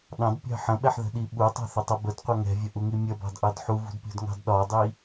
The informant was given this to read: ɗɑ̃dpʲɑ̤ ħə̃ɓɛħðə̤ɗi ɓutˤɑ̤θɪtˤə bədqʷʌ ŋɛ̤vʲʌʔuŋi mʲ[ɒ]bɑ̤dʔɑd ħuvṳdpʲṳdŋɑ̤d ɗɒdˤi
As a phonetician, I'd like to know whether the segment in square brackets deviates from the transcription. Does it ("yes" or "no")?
yes